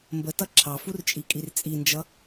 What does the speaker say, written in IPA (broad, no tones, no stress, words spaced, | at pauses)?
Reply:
mbətʌ ǁʰɑfurt͡ʃʼikʼir t͡sʼind͡ʒʌ